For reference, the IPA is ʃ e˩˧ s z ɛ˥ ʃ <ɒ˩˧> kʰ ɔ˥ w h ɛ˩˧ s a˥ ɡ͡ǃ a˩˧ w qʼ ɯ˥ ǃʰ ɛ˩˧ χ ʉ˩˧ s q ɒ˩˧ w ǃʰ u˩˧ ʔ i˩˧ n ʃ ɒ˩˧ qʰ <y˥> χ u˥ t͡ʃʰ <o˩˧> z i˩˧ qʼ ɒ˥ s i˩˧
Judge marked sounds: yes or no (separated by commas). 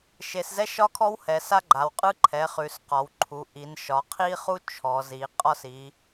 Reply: no, no, no